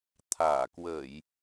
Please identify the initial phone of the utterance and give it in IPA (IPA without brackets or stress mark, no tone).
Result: t̪ʰ